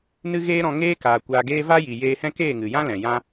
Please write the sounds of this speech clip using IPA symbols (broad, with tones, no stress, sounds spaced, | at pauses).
n ɨ˦ ɣ eː˦ ɾ ɔ̃˧ ŋ eː˦ k aː˨ kʷ aː˧ ɡ eː˦ v aː˦ j i˨ j eː˧ h ɛ̃˦ k eː˦˨ ŋ ɨ˨ j ã˦ l ɛ̃˨ j ã˦